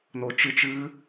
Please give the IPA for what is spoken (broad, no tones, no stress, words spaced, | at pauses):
not͡ʃɨt͡ʃ ɨ